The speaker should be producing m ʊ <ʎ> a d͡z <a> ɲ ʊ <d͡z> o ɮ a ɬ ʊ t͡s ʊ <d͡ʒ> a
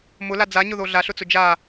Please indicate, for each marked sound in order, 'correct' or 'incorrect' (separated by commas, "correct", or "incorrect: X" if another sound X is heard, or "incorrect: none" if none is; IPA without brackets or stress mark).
incorrect: l, correct, incorrect: ð, correct